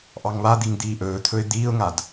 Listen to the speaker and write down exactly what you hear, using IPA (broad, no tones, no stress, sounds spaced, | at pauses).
ʔ ɑ ŋ β a d̪ i ŋ d̪ iː ʔ ɵː t̪ʰ ɵ ɪ̯ d̪ iː ʊ̯ ŋ a d